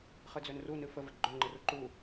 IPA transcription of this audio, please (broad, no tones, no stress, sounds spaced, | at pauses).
χ ɨ d͡z ø n r u n ɨ f ə v ə ɡ͡ǃ ø ŋ͡ǃ ɨ r u ǃ u